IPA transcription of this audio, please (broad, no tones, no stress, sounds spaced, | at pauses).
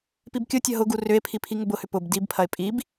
p i b kʲ ʊ tʲ ɐ ɦ ʊ ɡ u r ʏ e̯ pʰ i pʰ i ŋ ʊ b ʊ h ʏ p ʊ b d i b pʰ ɐ e̯ pʼ i b